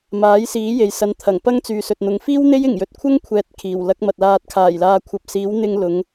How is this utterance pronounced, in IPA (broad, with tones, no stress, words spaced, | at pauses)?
maː˨˥jsiː˨˥ je˨jsɐ˨˧nt̪ʰɐ˨˩ŋpɐ˥ŋ t͡syː˨sɵ˨t̚n̪ʊ˨ŋ fiː˥w n̪e˥j ɪ˨˩ŋjɵ˨t̚kʷʰɐ˥ŋkʷʰɛː˨t̚ kʰiː˨˩wlɐ˨˥k̚mɐ˨t̚ laː˨t̚kʰaː˨˩j laː˨kʷʰɐ˨˥p̚ siː˨˥wn̪ɪ˧ŋ lʊ˨˧ŋ